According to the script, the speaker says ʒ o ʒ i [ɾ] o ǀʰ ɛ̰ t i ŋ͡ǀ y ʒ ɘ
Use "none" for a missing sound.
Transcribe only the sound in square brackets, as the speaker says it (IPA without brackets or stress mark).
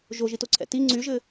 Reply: t